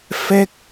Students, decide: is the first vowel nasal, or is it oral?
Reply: oral